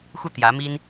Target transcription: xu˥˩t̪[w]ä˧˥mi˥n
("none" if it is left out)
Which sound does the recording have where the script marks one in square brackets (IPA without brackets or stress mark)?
j